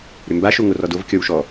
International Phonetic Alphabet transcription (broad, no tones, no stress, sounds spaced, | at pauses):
ɾ ʏ m b a ʃ o ŋ o r ɔ d o v kʲ ɔ w ʃ ɔ